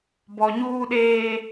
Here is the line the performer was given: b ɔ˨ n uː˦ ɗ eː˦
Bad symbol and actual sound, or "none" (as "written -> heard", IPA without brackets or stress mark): n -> ɲ